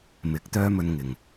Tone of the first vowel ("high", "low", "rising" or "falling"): rising